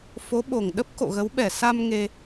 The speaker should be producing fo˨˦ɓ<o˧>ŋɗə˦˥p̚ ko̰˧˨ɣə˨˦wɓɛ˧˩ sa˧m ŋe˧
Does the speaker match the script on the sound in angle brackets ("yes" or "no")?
no